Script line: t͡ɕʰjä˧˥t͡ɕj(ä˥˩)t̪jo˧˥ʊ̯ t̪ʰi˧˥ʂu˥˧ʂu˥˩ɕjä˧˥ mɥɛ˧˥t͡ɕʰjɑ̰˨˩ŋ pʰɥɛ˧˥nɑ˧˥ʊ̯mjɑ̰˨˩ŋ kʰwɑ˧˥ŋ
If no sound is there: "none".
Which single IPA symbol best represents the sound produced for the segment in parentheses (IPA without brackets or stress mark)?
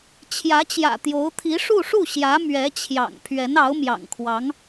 ä̰˨˩